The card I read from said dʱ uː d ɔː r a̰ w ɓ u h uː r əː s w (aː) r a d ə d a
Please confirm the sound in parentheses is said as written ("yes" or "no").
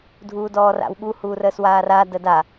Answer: yes